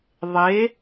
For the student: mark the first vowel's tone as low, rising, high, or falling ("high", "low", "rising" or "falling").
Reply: rising